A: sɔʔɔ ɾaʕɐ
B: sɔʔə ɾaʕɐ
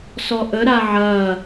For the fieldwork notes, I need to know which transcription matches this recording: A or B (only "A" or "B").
B